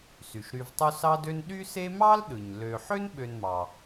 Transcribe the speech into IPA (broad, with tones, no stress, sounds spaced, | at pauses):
s y˩ ʃ ɾ y˨ v tˤ u˦ s ɑ˦ d ø˦ n ɗ y˥ s e˥ m ɑ˥ l ɗ ɯ˩ ɲ l ø˨ ħ ø˥ n ɓ ø˨ n m ɑ˩